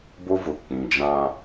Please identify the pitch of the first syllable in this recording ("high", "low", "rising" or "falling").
high